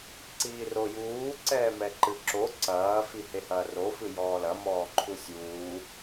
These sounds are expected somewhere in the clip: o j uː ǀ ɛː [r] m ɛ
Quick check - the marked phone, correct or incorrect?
incorrect